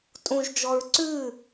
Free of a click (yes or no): no